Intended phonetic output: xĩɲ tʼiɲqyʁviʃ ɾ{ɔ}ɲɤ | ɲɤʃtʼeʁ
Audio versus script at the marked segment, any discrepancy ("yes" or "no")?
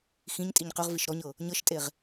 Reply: no